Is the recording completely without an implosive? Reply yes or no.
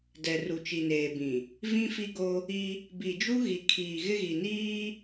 yes